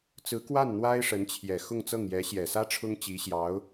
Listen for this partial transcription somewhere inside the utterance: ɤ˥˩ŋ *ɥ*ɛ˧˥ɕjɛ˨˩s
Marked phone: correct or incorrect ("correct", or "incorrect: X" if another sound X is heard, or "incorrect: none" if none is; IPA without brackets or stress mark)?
incorrect: j